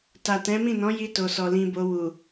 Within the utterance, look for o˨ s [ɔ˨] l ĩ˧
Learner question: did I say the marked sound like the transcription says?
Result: yes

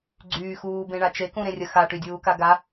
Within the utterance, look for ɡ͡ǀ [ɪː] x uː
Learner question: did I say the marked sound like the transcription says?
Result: no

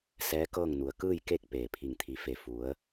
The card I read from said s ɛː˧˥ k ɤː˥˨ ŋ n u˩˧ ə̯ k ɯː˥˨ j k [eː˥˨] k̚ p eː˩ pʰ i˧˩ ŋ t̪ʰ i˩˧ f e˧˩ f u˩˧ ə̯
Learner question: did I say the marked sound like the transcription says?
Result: no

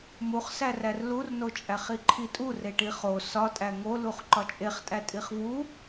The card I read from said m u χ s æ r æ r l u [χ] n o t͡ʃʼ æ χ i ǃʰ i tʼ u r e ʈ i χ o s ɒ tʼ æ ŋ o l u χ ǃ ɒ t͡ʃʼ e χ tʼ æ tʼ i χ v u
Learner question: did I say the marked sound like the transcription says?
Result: no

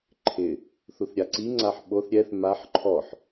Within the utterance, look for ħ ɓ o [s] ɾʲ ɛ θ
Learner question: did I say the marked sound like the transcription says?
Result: no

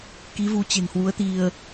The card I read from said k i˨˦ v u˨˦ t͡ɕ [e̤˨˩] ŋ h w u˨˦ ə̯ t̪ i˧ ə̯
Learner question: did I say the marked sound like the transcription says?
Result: yes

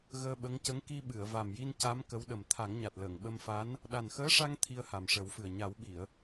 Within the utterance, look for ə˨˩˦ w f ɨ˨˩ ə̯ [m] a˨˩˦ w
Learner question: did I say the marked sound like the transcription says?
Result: no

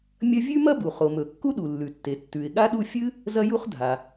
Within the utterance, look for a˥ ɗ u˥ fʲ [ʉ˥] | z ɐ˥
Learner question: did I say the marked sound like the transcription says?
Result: no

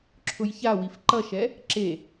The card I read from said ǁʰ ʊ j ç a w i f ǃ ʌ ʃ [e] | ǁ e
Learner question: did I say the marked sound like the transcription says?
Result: no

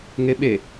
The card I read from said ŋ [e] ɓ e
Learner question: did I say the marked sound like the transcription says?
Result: yes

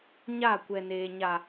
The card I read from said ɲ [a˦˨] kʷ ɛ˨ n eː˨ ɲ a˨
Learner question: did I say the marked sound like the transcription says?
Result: yes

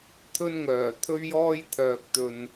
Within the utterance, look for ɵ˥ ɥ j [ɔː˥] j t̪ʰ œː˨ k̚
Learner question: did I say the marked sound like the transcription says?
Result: yes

